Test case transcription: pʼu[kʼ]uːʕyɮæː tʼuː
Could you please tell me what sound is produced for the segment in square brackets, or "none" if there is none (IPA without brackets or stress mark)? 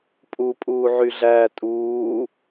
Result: pʼ